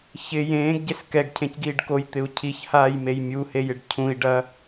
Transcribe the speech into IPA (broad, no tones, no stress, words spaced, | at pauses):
çɪ jẽːɡɟes kɛɡcʰẽcɡiːɖ kojt̪ɪu̯ cʰiçhaːjmej mʲuhejɪɖ cʰũi̯ɖɐ